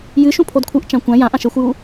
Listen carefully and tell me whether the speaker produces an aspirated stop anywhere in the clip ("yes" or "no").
yes